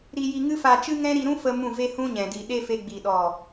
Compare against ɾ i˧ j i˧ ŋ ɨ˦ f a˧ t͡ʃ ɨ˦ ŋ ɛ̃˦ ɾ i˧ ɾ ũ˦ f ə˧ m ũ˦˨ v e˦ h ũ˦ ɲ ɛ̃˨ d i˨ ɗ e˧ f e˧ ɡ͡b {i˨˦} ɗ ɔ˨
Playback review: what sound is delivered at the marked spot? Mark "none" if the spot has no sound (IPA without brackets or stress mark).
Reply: i˨